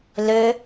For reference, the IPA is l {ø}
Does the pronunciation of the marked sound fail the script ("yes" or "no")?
no